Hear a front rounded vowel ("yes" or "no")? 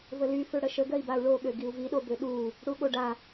yes